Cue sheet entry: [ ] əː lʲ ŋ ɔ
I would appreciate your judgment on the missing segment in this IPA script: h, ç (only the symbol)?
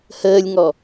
h